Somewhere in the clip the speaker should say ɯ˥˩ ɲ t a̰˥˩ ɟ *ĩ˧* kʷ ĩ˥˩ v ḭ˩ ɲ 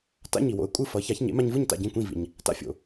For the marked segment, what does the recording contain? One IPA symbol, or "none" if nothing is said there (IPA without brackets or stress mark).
ĩ˥˩